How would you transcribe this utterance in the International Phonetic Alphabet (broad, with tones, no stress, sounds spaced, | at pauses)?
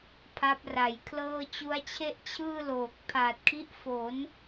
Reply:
pʰ a˦˥ p̚ r a˩˦ j kʰ l ɤː˥˩ t͡ɕ u˦˥ a̯ t͡ɕʰ e˥˩ ʔ t͡ɕʰ ɯː˥˩ l oː˨˩ k̚ pʰ aː˨˩ t̚ kʰ i˦˥ ʔ f o˩˦ n